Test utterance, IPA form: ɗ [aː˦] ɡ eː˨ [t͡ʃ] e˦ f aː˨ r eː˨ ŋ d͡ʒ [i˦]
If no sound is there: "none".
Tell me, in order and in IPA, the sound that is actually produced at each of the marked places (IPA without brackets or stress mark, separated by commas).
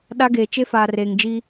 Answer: a˦, t͡ʃ, iː˦